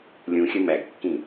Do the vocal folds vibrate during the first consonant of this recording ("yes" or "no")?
yes